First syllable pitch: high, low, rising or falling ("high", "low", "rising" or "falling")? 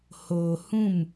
low